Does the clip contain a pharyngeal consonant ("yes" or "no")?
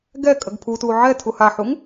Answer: yes